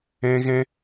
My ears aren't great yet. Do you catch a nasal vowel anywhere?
yes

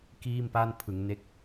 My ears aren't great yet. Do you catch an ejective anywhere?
no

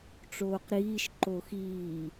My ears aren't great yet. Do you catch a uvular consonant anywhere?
yes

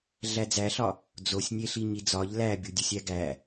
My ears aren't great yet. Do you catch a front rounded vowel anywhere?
no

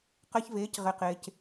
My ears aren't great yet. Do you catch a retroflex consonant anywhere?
no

